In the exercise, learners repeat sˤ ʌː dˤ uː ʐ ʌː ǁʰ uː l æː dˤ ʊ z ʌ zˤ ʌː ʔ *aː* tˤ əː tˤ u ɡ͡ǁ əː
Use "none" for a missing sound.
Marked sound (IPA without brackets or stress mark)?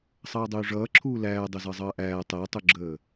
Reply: æː